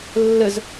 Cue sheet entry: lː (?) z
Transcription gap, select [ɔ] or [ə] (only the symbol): ə